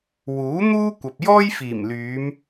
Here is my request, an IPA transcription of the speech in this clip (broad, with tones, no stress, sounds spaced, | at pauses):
w uː˨˥ n̪ uː˥ kʷ ɐ˨ p̚ j ɔː˥ j f iː˨˩ m l yː˨˧ m